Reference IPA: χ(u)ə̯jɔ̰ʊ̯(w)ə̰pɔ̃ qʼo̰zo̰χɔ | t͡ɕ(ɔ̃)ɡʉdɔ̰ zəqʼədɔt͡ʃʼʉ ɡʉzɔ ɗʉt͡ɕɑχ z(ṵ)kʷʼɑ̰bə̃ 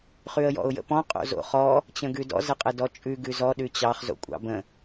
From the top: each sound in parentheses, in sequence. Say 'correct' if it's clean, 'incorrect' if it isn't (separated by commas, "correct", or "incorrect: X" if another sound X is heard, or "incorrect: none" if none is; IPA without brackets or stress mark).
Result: incorrect: ʉ, incorrect: j, incorrect: ə̃, incorrect: o̰